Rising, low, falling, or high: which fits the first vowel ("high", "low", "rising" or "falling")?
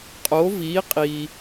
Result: rising